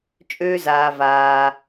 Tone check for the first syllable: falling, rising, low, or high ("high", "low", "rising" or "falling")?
high